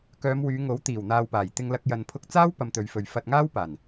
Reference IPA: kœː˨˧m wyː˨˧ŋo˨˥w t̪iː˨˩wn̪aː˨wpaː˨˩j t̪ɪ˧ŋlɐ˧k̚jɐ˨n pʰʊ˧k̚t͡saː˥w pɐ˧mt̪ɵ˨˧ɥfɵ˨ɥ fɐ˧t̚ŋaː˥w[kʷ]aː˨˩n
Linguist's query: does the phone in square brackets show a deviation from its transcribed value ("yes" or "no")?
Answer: yes